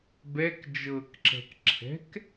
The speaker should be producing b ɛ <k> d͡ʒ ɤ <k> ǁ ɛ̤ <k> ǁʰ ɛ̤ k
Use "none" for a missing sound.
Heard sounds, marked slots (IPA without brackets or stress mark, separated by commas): k, k, k